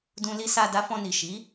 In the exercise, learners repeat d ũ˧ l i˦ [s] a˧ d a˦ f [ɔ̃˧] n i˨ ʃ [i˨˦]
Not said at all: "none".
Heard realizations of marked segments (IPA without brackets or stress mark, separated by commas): s, ɔ̃˧, i˨˦